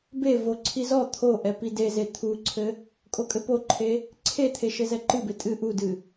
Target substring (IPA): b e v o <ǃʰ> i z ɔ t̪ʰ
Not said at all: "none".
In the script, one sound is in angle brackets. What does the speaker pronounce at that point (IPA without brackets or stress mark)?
ǀʰ